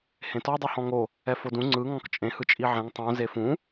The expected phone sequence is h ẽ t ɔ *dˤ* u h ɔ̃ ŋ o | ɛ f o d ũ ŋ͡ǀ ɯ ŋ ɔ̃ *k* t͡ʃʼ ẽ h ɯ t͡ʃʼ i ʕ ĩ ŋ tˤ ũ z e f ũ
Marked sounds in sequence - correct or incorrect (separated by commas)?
correct, correct